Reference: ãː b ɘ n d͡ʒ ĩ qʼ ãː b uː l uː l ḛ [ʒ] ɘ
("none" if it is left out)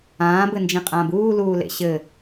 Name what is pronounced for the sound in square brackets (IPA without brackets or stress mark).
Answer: ɕ